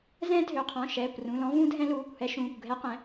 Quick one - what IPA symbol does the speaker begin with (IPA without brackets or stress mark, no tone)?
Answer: z